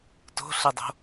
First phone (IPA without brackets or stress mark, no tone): t